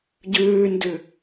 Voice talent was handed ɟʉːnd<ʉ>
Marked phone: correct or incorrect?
correct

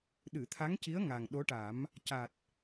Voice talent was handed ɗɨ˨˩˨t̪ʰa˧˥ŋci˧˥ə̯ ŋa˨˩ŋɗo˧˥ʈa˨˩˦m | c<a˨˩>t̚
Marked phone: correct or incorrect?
correct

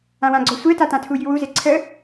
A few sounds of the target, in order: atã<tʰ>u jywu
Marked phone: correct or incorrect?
correct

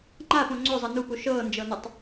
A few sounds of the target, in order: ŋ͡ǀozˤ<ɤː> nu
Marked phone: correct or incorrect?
incorrect: ɤ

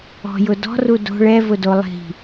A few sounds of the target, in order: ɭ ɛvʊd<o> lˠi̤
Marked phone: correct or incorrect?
correct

